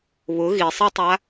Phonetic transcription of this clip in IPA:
β ʊ ɣ i sˤ e tˤ a

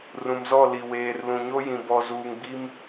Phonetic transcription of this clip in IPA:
r ũ˨ m z ɔ˦˨ l i˨ w eː˨ r l ũ˨ ɲ o˦ j ĩ˨ b ɔ˨ z uː˨ ŋ ɡ͡b i˦ m

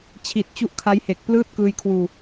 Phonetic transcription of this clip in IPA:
t͡ɕʰ i˨˩ t̚ t͡ɕ u˦˥ ʔ kʰ a˦˥ j h e˨˩ k̚ p l ɯː˥˩ t̚ k ɯː˧ j kʰ w uː˧

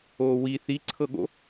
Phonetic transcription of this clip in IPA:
oː w i θ i ǀʰ ɤ ɠ o̰

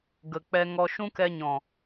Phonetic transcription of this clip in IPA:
ɡ ə˨ k͡p ɛ˧ ŋ ɔ˧ ʃ ũ˦ k ɛ˧ ɲ ɔ̃˨

